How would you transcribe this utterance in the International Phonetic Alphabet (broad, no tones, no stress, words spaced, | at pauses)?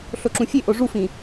ɬoǁũfʲeʔo ʐufĩ